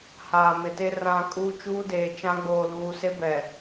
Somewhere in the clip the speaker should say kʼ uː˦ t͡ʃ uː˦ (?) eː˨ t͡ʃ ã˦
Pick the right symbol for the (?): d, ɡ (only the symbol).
d